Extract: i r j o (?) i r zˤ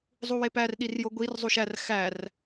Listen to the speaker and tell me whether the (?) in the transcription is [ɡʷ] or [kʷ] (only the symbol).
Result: ɡʷ